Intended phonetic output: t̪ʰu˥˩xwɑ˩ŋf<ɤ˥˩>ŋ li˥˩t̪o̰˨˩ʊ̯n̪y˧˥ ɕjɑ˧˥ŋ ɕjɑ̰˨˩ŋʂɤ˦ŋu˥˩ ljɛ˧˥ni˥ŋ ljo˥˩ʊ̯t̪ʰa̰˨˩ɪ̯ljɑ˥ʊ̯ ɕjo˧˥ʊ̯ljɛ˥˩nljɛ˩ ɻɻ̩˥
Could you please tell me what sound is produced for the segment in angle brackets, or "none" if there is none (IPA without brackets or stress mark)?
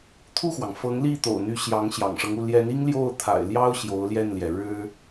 ɤ˧˥